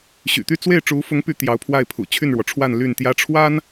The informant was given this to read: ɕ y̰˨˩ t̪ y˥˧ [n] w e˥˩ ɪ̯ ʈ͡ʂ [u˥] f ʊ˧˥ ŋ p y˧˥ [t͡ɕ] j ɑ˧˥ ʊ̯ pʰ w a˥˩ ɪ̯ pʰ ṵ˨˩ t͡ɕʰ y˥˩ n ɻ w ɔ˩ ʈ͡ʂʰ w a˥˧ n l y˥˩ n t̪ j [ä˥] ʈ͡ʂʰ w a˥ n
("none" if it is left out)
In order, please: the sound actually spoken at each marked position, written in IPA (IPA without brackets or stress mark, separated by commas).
t͡s, u˧˥, t̪, ä˥